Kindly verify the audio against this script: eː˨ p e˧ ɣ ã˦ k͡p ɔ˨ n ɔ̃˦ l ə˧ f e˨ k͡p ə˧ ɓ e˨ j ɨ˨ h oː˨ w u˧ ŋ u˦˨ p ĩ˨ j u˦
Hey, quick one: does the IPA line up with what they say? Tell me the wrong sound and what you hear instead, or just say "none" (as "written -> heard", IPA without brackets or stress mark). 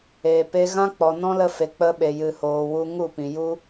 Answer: none